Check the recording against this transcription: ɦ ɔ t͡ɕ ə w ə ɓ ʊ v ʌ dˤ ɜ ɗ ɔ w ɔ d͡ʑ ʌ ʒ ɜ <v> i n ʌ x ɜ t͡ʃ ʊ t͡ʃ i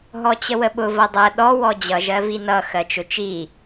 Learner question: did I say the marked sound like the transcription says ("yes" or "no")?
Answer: yes